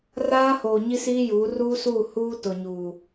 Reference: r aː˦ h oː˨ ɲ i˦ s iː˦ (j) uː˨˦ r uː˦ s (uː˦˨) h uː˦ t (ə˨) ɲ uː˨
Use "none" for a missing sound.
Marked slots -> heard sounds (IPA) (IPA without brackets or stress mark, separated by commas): j, uː˦˨, ʊ˨